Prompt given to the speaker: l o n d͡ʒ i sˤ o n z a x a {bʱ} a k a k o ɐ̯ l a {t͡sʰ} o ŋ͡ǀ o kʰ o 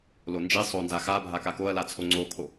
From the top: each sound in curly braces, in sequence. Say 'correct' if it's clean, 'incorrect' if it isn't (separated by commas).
correct, correct